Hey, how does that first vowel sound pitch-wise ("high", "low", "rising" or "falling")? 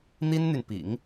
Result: high